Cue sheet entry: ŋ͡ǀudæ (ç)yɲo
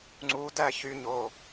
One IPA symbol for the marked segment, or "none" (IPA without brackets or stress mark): ç